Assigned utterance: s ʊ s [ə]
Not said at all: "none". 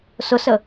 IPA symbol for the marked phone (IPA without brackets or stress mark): ə